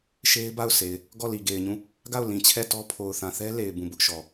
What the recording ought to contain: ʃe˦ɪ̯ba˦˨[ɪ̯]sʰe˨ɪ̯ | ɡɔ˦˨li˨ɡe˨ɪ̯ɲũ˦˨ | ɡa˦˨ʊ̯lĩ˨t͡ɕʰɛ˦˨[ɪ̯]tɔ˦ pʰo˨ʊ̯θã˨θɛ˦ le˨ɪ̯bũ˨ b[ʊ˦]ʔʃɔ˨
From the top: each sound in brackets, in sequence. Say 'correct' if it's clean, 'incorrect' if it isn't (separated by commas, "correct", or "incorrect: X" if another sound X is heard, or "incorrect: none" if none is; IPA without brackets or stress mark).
incorrect: ʊ̯, incorrect: none, correct